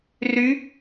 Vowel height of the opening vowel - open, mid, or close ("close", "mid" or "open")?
close